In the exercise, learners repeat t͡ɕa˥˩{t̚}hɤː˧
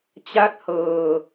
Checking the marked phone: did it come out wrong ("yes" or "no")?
no